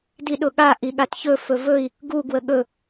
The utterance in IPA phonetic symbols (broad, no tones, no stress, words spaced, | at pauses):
diɗʊɠa ʔiɠatçɵ fɵvɵi̯ | ɡu ɡwəɠɵ